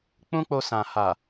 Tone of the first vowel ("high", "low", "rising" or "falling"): high